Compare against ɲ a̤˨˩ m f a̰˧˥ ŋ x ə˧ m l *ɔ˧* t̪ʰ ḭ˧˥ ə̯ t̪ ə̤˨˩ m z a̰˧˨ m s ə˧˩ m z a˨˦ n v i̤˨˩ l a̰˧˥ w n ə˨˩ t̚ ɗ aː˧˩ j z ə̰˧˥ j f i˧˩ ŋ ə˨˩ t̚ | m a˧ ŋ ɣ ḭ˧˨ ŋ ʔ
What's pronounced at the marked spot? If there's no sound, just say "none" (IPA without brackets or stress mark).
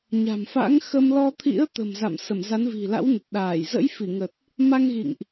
ɔ˧